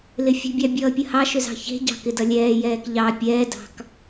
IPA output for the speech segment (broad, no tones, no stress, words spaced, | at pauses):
lɪfʲə̤bʲɑ bʲʌːpʲəhɑʃʏz ɑ̤çe̤ɟɑ̤ kɪdʌlʲɛːjɛːk ʎɑ pʲɛːdɑ̤k